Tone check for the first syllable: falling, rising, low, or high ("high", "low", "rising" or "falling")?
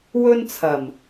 high